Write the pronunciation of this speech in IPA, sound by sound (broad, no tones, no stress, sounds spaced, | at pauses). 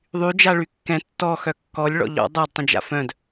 ðˤ y d͡ʒ a ɭ y kː ɛ̃ tː ɔ x œ kː ɔ lʲ ɭ ɔ̰ ʎ ɔ̰ dˤ a d tˤ ə̃ d͡ʒ a̰ f œ̃ d